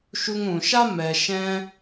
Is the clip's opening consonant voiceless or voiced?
voiceless